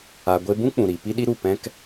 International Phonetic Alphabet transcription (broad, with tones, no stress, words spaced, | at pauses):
a˧ɡʷe˦ bũ˦k͡pũ˨ɾi˨ pi˦ɗi˦ɾu˦˨ pɛ̃˦k